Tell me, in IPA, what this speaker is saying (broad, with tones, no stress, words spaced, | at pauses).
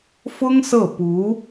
fʊ˥ŋ sɤ˥˩pu˧˥